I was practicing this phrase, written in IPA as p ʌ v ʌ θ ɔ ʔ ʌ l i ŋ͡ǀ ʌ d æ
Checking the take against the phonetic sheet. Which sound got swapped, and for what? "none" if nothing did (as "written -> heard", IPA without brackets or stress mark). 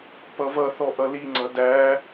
none